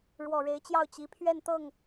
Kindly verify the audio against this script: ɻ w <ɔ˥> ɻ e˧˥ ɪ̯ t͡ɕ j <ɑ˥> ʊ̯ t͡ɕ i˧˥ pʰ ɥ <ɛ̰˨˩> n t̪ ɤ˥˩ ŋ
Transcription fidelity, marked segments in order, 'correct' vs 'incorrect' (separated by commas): incorrect, incorrect, incorrect